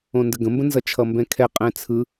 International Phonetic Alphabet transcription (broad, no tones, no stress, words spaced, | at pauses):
õndəɡə̃mbə̃ nzʌt͡ʃʰʌmbɛ̃kʰɛ qʼɛ̃t͡sʰɯ